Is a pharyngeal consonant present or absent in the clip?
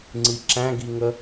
absent